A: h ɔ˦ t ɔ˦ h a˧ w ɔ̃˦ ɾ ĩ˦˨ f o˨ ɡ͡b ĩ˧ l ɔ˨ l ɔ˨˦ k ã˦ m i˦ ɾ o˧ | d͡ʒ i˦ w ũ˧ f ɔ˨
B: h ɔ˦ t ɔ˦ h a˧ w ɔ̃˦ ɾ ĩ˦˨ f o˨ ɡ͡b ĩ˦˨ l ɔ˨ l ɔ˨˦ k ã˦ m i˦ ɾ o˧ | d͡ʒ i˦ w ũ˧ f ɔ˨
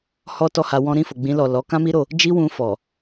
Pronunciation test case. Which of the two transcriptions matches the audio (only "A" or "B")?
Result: A